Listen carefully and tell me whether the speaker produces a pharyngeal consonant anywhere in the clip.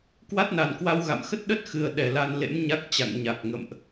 no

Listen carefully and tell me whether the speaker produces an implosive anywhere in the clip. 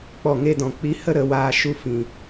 no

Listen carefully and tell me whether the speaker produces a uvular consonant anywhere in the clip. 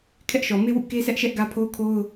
no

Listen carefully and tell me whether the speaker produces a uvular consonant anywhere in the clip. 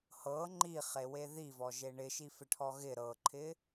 yes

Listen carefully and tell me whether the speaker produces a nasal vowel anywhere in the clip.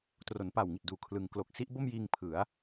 no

